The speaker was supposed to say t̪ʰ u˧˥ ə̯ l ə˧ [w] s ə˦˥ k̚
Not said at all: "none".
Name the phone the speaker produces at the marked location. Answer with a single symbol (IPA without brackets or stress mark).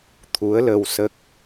w